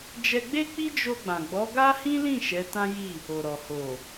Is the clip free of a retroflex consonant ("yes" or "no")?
yes